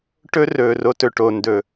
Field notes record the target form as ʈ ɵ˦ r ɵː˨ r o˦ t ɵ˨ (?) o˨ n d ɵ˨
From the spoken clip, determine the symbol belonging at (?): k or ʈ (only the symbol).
ʈ